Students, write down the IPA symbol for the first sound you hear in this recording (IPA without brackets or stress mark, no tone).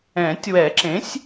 ɛ̃